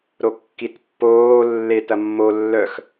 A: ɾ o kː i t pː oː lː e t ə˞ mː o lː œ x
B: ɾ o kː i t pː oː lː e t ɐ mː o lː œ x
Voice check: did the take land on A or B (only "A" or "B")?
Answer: B